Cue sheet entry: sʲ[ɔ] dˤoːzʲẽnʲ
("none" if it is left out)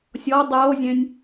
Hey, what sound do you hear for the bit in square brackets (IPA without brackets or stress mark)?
ɔ